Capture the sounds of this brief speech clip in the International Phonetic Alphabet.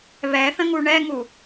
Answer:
βɛθə̃ŋu ɳɛŋu

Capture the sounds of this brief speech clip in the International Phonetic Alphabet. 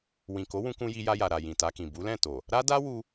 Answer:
wĩ˨ko˨˦wũ˧kũ˧ ji˧ja˧ja˨ ɾa˨ jĩ˨ta˧kĩ˨ bu˨˦ lɛ̃˦˨to˨ | ɾa˦ da˦wu˧

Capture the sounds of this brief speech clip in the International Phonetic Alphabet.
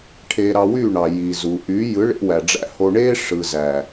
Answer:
ʈʰeː˧ɾɑ˧wyː˦˨ɳɑ˨ ji˨ zu˨ʔy˨˦ jɯ˨˦ɭḛ˧wæ˨ɖ͡ʐæ̰˧ ho˧ɳeː˦ʂɯ˨zæ˨

